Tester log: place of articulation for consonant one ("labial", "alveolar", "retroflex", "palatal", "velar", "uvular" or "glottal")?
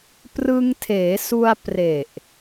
labial